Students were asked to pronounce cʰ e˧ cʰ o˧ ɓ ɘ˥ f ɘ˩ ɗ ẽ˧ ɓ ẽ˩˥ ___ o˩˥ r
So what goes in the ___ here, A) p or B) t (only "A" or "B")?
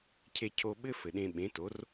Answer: B